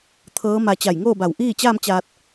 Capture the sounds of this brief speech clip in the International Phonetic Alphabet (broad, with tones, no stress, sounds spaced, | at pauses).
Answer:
t̪ʰ ɤː˧˥ m a˧ t͡ɕ a˧˩ j ŋ oː˥˨ b a˧˩ w ʔ iː˥˨ t͡ɕ aː˥˨ m t͡ɕ aː˧ t̚